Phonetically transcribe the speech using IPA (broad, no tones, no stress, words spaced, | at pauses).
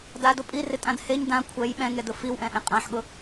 dado pʼirɪtʼãd heɲ dã kʷʰɛj ɓɛ̃ŋɛdʊ fiwʔɛ̃ʔẽ qʼãħɠʊ